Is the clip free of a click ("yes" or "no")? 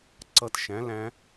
no